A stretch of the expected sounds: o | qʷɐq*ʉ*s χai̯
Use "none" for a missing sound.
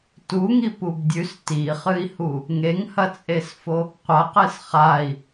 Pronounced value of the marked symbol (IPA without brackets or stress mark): ɨ